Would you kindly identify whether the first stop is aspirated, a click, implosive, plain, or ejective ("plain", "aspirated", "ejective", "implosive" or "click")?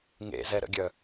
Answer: plain